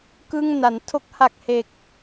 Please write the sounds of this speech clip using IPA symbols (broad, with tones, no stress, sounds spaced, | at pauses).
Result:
k ɯ˥˩ ŋ n a˩˦ n tʰ o˦˥ k̚ h a˨˩ k̚ h e˨˩ k̚